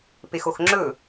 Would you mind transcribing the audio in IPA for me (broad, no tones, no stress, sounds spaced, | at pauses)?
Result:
p e x o x ŋ͡ǁ ɵ